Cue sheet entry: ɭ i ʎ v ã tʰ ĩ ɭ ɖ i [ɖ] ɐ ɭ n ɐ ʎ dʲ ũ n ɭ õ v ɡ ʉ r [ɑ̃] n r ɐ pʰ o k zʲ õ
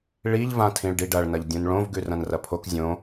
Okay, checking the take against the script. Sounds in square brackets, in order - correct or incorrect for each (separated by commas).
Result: correct, incorrect